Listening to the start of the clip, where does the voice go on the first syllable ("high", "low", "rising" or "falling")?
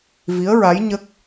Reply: rising